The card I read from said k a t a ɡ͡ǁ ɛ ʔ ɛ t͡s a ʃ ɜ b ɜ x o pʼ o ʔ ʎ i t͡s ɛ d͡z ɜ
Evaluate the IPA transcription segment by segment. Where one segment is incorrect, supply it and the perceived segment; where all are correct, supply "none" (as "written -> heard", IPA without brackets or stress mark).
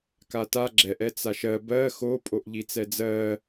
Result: none